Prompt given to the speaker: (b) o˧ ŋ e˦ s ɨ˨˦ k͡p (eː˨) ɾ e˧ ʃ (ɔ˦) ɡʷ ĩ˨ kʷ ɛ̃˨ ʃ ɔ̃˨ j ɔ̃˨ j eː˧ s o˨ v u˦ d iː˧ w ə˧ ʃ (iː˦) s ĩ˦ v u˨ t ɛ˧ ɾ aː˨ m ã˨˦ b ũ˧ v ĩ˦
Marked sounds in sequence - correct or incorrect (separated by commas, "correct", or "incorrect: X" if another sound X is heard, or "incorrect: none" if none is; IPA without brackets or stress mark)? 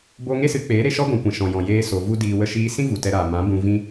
correct, incorrect: eː˨˦, correct, incorrect: iː˧